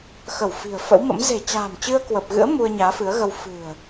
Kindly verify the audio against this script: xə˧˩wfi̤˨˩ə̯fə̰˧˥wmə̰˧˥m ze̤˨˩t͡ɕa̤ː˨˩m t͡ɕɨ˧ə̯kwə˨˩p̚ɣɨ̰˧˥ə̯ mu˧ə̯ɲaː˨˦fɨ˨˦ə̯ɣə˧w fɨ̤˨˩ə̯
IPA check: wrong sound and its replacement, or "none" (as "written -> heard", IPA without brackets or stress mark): none